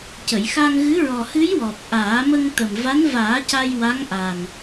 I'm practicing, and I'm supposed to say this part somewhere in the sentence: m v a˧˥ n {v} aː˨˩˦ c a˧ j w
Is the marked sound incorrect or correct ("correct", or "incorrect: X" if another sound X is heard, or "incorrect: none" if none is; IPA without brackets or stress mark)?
correct